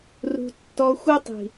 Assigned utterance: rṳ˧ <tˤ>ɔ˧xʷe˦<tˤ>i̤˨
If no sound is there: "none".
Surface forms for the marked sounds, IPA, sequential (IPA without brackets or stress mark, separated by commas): tː, tˤ